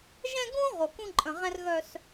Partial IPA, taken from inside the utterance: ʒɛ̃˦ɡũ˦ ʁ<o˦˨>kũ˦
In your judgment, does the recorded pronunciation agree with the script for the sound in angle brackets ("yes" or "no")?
no